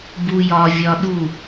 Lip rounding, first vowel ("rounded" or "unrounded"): rounded